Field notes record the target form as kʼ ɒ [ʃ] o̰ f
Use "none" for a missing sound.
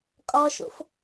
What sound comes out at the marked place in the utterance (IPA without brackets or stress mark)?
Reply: ʃ